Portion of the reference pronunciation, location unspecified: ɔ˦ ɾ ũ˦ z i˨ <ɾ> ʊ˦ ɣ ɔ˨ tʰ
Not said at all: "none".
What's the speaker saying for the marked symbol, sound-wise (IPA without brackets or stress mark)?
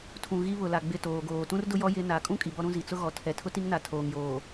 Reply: t͡s